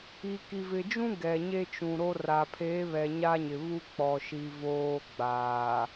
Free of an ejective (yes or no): yes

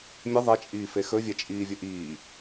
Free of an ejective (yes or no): no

